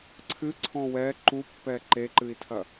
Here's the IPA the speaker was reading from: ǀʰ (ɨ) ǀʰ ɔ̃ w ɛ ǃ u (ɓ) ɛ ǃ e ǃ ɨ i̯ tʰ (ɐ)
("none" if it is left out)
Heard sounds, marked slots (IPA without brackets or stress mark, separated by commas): ɨ, pː, ɐ